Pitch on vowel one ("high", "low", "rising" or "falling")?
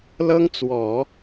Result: high